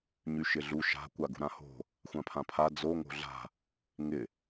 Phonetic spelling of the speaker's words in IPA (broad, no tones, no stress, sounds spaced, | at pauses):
ɲ y ʃ ɪ ɮ u ʃ a̤ kʷ a ɡ ṳ ɾ ã h o̤ | xʷ ã pʰ ã pʰ a d͡z o ŋ o̤ ɮ a̤ | ŋ ɪ